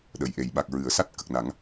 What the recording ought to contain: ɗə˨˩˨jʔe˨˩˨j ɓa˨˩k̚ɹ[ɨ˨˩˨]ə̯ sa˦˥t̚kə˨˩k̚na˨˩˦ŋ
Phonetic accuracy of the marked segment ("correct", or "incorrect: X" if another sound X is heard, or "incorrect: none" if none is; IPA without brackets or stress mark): correct